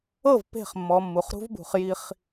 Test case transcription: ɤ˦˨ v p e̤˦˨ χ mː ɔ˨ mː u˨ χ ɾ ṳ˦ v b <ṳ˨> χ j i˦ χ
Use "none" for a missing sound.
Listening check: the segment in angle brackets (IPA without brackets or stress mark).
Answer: ṳ˨